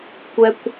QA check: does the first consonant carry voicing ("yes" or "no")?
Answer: no